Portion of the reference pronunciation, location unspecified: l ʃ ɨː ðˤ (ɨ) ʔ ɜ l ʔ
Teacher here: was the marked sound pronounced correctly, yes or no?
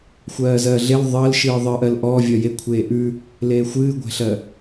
yes